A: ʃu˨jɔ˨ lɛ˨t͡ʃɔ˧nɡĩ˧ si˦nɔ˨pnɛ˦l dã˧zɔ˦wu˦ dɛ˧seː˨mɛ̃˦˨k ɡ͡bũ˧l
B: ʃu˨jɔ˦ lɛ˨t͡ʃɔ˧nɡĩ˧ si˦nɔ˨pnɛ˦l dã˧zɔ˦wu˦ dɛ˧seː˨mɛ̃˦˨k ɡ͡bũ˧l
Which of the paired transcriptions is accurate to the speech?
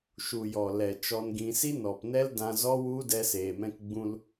A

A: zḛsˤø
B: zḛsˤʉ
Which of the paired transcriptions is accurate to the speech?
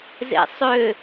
A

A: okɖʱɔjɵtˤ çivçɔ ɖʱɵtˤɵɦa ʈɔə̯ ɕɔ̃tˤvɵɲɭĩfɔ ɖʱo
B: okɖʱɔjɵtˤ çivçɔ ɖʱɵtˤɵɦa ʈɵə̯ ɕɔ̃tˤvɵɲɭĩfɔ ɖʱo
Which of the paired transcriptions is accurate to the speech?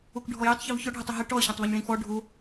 A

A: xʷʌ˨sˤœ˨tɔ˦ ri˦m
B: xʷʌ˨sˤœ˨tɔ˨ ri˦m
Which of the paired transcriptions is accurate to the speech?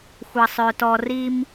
B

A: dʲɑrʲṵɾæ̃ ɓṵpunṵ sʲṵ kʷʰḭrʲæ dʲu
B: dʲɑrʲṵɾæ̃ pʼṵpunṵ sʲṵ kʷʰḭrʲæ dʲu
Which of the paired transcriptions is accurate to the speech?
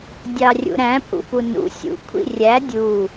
B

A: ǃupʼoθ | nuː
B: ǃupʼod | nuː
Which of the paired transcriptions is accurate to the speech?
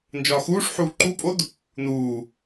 B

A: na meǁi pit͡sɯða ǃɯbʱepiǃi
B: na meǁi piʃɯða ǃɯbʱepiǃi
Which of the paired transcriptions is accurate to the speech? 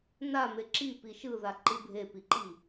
B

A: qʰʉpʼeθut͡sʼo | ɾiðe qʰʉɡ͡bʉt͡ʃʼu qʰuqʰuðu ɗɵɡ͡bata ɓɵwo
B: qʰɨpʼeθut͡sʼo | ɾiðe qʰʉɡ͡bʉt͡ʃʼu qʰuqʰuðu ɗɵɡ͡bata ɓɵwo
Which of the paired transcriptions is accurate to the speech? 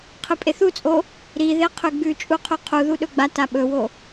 B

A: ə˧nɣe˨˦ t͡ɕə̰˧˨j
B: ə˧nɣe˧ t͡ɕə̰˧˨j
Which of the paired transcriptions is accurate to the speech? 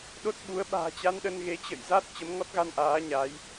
A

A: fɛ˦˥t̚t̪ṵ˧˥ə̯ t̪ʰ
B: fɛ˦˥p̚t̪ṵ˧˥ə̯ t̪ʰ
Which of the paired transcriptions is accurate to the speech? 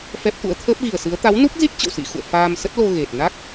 B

